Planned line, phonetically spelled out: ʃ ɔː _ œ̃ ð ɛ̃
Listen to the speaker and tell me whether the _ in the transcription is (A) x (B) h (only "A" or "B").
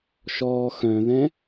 A